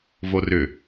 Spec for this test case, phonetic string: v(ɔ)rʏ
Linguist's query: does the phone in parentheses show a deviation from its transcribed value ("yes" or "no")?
yes